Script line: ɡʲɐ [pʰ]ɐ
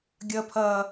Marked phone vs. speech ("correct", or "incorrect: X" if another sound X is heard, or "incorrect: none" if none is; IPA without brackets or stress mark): correct